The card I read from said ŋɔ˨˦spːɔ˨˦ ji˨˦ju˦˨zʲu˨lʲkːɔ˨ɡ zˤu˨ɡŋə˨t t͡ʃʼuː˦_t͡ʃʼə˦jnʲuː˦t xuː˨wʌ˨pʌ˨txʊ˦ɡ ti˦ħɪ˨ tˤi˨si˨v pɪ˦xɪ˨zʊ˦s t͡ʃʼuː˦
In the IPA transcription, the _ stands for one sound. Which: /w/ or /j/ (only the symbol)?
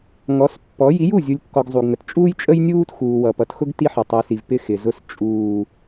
j